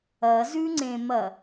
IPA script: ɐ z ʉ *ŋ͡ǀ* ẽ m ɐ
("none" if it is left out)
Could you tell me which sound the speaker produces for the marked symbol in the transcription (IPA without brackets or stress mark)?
ŋ͡ǀ